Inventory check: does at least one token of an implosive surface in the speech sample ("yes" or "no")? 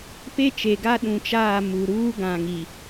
yes